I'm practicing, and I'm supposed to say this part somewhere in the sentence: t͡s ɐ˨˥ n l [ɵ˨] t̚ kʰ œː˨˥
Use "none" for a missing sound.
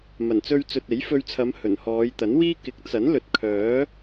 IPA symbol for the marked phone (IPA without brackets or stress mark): ɵ˨